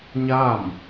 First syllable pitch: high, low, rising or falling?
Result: falling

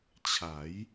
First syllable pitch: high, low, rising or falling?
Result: rising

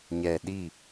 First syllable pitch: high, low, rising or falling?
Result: low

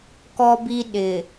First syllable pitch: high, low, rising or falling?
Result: high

